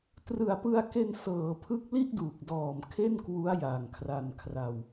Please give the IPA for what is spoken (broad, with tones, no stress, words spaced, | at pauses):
trɯ˨˩a̯pɯ˧a̯ke˧nsɤː˩˦ pʰɯ˦˥k̚li˥˩ʔduː˨˩k̚dɔː˨˩m kʰe˥˩nkwu˦˥a̯ ja˨˩ŋkʰra˧nkʰra˧w